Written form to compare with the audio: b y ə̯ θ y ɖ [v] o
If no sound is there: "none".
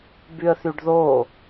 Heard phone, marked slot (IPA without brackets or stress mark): ð